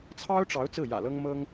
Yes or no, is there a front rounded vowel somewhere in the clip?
no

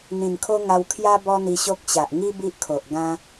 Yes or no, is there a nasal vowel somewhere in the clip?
yes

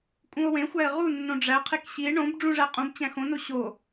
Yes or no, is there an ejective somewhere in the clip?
yes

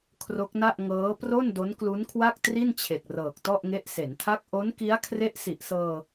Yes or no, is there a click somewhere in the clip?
no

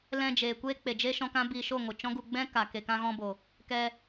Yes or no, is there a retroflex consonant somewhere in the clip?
no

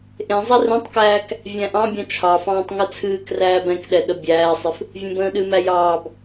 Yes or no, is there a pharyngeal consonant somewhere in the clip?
no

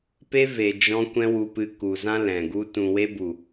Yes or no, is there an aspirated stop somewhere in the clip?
no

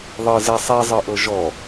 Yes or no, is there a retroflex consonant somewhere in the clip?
no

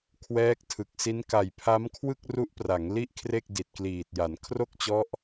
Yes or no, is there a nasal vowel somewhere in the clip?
no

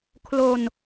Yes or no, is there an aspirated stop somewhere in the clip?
yes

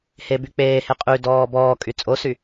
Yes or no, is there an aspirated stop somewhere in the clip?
no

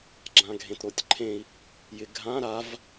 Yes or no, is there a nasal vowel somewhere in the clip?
yes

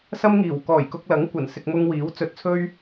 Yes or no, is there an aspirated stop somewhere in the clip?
yes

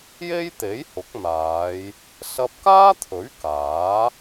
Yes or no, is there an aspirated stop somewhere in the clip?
yes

